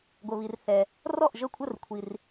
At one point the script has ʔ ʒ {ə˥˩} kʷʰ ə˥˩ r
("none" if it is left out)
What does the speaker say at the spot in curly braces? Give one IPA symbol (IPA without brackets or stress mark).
ə˥˩